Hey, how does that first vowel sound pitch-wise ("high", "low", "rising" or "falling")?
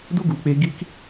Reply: high